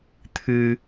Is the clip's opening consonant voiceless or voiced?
voiceless